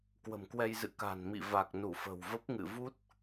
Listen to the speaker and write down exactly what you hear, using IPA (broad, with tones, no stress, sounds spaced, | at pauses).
k w ə̤˨˩ m k w ɛ˧ j z ɨ̰˧˨ k a̤˨˩ n m ḭ˧˨ v a˨˩ k̚ n u˧˩ f ə̤˨˩ w v ə˦˥ p̚ ŋ ɨ̰˧˨ v u˦˥ t̚